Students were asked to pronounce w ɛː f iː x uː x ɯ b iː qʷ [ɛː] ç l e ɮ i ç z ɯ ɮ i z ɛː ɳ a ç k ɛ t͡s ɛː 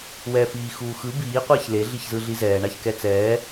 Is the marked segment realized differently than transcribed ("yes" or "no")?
no